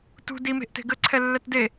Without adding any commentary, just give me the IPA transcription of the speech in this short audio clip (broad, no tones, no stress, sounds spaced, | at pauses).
t ṳ d i m e̤ ʔ t e̤ ɡ ə ǀʰ ɛ lː ɛ t d e